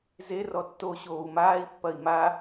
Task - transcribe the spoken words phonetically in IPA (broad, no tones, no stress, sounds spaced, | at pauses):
z e r ɔ tː o ɕ oː u̯ m aː i̯ pː ɐ i̯ m a